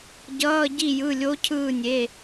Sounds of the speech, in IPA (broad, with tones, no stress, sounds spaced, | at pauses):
ɟ ʌː˧˥˧ ɟ i˦˨ j ɯ˩˧˩ lʲ o˧˥ cʰ ɯː˦˨ nʲ e˩˧˩